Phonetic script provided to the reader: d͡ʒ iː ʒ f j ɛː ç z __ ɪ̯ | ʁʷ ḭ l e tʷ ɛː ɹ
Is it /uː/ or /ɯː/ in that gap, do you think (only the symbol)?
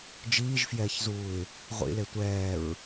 uː